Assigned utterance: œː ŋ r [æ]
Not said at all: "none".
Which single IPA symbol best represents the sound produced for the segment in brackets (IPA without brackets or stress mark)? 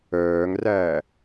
æː